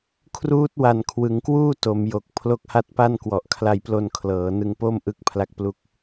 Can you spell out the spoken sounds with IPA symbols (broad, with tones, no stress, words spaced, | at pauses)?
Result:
kʰruː˦˥t̚wa˨˩n kʰwɯ˩˦ŋkwuː˥˩ to˩˦mjo˨˩k̚ pʰlo˦˥k̚ha˦˥t̚pa˥˩nkwɔ˨˩ʔ kʰla˧jplo˧n kʰlɤː˩˦nɯ˧ŋpo˥˩m ʔɯ˦˥k̚ pʰla˥˩k̚plu˥˩k̚